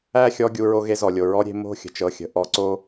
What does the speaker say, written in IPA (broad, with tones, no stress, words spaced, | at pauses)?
æ˦˨xʲɔ˧ɡʲu˨ ɹo˧ɣe˧ zɔ˨lʲo˨ɹɔ˦ ɾʲe̤˧mo̤˦˨xʲə̤˨t͡ʃ ɤ˨xʲə̤˨ ʔɔ˧ǀo˦